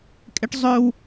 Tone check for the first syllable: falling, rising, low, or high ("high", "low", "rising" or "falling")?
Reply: high